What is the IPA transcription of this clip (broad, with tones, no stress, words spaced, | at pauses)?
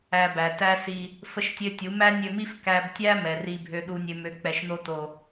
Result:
æ˧bæ˨tæ˦si˧ | fə˦ʃtʲø˦tʲu˨˦ mæ˦nʲø˧mi˦f kæ˧b tʲæ˦ mɛ˨ri˧bʱø˧ ɗu˨nʲø˨mø˨ k͡pɛ˨ʃno˧to˨